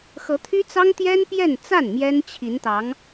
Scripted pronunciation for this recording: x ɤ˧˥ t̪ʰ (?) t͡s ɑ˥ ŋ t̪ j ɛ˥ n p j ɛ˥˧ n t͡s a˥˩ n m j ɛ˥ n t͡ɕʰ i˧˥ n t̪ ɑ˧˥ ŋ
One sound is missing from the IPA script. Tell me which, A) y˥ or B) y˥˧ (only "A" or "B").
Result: A